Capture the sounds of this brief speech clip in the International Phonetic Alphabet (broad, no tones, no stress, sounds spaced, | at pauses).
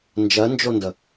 n d͡ʒ ɜ n d͡ʒ o n d ə